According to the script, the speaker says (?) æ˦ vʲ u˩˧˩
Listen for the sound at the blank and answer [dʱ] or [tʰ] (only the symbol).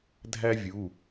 dʱ